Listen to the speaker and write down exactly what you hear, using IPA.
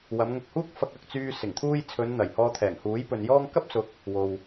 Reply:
w ɐ˨˧ m ŋ ʊ˧ k̚ h uː˥ k̚ f ɐ˧ k̚ ɐ˨ k̚ t͡s yː˧ s ɪ˨˩ ŋ t̪ʰ uː˥ j t͡sʰ ɵ˨˧ n n̪ ɐ˨˩ j h ɔː˧ t̪ʰ ɛː˨˩ ŋ h uː˨˥ j p ɵ˨ n j ɔː˥ ŋ k ɐ˥ p̚ s ʊ˨˥ k̚ | w o˨ w

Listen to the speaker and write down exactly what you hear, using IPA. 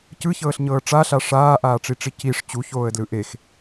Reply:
c ɯ ç ɤː ɬ ɲ ɤː ʈ͡ʂ a ɬ a ʂ aː ʔ aː ʈ͡ʂ i ʈ͡ʂ i c i ʂ t͡ɕ u ç oː ə̯ d l ɯ ʔ e x

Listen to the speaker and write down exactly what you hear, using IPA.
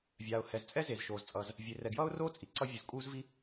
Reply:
vʲ aː˩ ʊ̯ h ɛ˩ z t͡sʼ ɛ˥ z e˩ z ʃ oː˩ z t͡sʼ ʌː˩ z | vʲ e˩ r ɛ˩ ɡ j ʌː˥ ʊ̯ r oː˥ t͡sʼ i˩ ǀ ʌ˥ vʲ ɯ˩ z kʼ uː˥ z v i˥

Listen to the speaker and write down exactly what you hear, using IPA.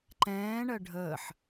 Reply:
ǃ ɛ̃ː ɳ ɜ ɖʱ əː ħ

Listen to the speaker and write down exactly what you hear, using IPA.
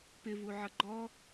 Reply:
p ɪ v u ʕ ʌ ɡ͡ǃ ɔ

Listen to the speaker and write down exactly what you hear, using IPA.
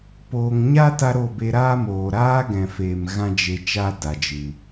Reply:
p oː˦ ŋ ɲ a˦ t a˦ ɾ o˦˨ b e˧ ɾ aː˦ m oː˨ ɾ aː˦ ɡ ɛ̃˨ f eː˨ m ɣ ã˦ d͡ʒ e˧ t͡ʃ a˦ d a˨ d͡ʒ ɨ˨

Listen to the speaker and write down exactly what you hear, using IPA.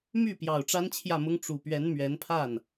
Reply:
m y˥˩ p j ɑ˨˩ ʊ̯ ʈ͡ʂ a˥ n t͡ɕʰ j ä˥˩ m ʊ˥ ŋ ʈ͡ʂ u˨˩ p ɥ ɛ˧˥ n m ɥ ɛ˧˥ n pʰ a˥˩ n

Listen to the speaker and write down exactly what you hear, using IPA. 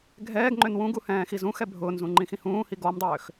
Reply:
ɡʱ ɛː ɡ ŋ͡ǃ ø n w ũ ɡ u h ɛ̃ː x i z ũ x ɛ bʱ ʊː n z ũ ŋ͡ǃ ĩ x ĩ h ũː h i ɡ ɔ m dˤ øː x

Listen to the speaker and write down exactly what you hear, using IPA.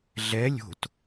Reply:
ɮ ɛ lʲ o̤ t

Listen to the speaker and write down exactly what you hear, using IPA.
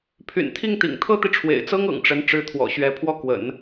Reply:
pʰ y̰˨˩ n t̪ʰ i˥˩ ŋ t̪ ḭ˨˩ ŋ t̪ʰ ɤ˥ t̪ i˨ ʈ͡ʂʰ w ḛ˨˩ ɪ̯ t͡s ɤ˥ ŋ ɤ̰˨˩ ŋ ʈ͡ʂ ə˧˥ n ʈ͡ʂ ɻ̩˧˥ t̪ʰ w ɔ̰˨˩ ɕ ɥ ɛ˧˥ pʰ w ɔ˥˩ k w ə̰˨˩˦ n

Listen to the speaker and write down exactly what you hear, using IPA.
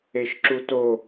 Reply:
e ʃ ǁ u t o

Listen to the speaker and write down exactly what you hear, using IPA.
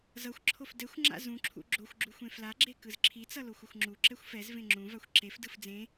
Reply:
z ʌ xʷ ǁʰ o f d ɛ xʷ ŋ͡ǁ a̰ z ũ ǁʰ ṵ ɡ͡ǁ o xʷ ɡ͡ǁ u xʷ ẽ f l a ɡ͡ǁ e k ɯ z ǁʰ i t͡s ʌ l o xʷ ʌ xʷ ŋ͡ǁ u ǁ ɛ xʷ f ɛ z v ẽ ŋ͡ǁ ũ v a xʷ ǁ e f d ɯ f d͡z ẽ

